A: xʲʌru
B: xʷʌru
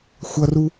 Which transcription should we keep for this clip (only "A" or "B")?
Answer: B